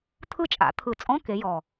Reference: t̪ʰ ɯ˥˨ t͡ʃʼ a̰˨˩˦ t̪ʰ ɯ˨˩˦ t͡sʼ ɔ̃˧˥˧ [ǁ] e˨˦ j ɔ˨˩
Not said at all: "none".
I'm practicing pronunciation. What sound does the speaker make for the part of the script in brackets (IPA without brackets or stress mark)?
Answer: k